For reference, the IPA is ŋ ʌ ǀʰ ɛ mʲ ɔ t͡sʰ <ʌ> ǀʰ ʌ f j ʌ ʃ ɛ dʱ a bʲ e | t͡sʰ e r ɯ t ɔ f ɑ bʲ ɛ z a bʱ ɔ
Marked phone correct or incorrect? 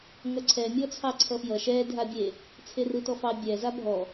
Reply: incorrect